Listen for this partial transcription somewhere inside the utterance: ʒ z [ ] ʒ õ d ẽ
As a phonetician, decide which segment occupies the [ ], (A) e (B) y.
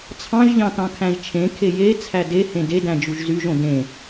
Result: B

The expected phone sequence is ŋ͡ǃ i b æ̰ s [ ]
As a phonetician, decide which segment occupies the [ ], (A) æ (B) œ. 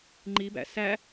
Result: A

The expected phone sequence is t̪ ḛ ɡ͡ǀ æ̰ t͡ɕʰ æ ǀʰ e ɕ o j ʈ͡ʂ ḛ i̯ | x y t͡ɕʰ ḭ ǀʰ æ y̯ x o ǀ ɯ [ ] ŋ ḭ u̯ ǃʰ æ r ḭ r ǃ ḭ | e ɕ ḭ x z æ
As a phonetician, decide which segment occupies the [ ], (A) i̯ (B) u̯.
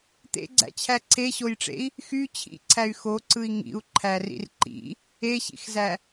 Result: A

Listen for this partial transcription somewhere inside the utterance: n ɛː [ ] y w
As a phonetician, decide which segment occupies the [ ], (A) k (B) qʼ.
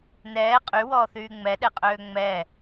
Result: B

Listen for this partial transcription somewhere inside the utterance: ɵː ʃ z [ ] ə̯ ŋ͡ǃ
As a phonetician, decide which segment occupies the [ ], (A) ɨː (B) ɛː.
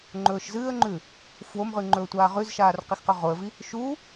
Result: A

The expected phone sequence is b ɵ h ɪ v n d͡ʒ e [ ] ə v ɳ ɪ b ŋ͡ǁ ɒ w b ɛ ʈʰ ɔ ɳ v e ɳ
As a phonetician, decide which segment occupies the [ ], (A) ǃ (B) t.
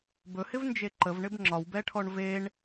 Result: A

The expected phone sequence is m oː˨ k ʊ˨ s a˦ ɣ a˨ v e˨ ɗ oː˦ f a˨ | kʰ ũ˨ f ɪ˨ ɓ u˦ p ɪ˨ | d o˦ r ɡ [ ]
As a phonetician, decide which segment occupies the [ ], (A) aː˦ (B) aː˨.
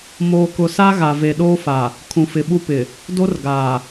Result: B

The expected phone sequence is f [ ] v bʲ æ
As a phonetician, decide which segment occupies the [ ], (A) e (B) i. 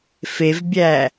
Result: A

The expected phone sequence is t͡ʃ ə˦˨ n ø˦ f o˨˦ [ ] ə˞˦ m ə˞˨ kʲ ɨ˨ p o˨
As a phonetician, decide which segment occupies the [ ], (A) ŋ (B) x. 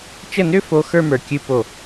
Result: B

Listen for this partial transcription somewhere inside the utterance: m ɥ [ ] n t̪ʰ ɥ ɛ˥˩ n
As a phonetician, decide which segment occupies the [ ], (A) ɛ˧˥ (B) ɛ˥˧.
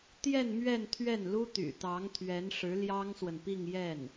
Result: B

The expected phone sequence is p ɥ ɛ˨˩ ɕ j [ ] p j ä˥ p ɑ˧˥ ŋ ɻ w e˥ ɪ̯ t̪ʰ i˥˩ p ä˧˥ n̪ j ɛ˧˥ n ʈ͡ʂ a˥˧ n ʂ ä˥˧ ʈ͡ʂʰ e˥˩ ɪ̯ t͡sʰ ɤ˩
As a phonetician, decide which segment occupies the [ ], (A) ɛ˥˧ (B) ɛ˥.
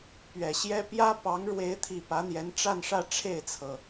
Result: B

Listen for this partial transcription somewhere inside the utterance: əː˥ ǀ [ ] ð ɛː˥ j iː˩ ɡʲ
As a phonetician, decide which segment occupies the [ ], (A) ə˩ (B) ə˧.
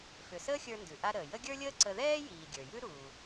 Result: B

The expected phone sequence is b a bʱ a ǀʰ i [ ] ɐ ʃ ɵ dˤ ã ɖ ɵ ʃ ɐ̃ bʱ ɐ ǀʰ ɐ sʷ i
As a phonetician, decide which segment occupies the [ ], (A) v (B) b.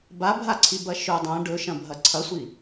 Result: B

